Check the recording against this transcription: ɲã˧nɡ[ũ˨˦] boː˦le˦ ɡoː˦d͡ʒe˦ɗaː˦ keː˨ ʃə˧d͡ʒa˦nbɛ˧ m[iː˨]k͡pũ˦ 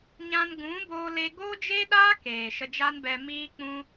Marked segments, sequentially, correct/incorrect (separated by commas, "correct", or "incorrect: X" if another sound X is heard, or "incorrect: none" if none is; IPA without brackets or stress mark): correct, incorrect: iː˦